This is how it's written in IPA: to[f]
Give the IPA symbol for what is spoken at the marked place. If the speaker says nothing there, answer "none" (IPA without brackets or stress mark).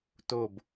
b